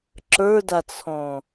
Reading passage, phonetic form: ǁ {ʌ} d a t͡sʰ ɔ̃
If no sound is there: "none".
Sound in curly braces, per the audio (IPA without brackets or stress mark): ə˞